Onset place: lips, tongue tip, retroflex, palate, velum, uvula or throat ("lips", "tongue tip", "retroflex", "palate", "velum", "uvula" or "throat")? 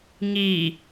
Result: velum